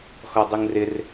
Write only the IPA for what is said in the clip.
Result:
xɔdˤuŋrɪr

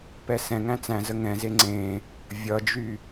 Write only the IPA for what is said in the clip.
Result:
pɛsɛ̃ŋæ̃ t͡sæ̃zə ŋɛ̃ze ŋ͡ǀẽ | vʲʌd͡ʒy

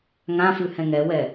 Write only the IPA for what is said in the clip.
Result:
ŋãfʉhɛ̃ ŋɛwɛ

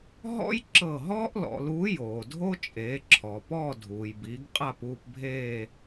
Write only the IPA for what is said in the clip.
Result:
ɦɔ̰˥j ǁɤ˦˨ ɦɔː˥ʔlɔ̰˩˧luː˨˥ joː˩dʱo˥ t͡ʃʼeː˩˧ǁʰɔː˩pɔː˦˨ dʱuː˩jbiː˩˧ɡ qʼa˦˨puː˦˨pbʱeː˦˨

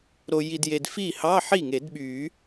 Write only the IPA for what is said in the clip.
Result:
ɾo˨ji˨dje˨d fi˥˩ hɑ˧˥˧ ħi˥˩ŋe˨˩˦dɓy˨˩˦

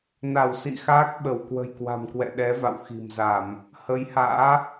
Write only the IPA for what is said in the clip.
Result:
na˧˩w sḭ˧˨xaː˦˥k̚ɓə˧˩w kwə̤˨˩jkwa̤˨˩mkwɛ̰˧˨ ɗɛ˨˦va̰˧˨w xi̤˨˩mza˧˩˨m | hə˨˦jha̰ː˧˥

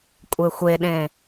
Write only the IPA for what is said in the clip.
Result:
kʷʼexʷeɗẽ

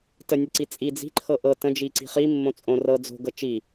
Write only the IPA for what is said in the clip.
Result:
tənʲəǀi t͡sʼi d͡zi̤ ǃʰɤʔɤ tə̃d͡ʒi ǀi̤χi mːõt͡sʼõ rɤ d͡zo̤ɡɤ t͡ʃi

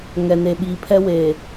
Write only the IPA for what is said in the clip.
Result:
ŋɛ˨ne˨ɓiː˨ pʰɛ˦ weː˨

